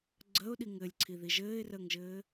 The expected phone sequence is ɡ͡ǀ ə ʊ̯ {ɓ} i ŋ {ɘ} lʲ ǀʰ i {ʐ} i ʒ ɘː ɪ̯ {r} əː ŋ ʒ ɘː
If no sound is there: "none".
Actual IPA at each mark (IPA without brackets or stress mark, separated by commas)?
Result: ɗ, ɘ, ð, r